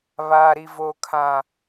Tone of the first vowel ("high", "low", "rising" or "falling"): low